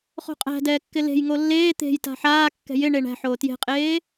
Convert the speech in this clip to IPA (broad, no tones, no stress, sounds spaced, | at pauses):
χ o̤ qʼ æ̤ d ɛː kː ɪ l e̤ j ŋ o lː eː t̪ e̤ j t a̤ ħ aː kː ɛ̤ j ɪ ɳ e ɳ æ̤ ħ oː t j e̤ qʼ eː